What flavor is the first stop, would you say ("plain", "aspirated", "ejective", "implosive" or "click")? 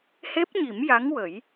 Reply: plain